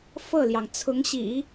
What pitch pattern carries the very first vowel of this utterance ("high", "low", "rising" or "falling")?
falling